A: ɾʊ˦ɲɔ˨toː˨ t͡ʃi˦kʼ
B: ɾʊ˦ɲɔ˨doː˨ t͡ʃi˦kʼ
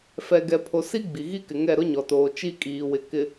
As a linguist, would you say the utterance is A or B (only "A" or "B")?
A